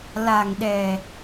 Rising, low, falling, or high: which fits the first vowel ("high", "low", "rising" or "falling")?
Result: low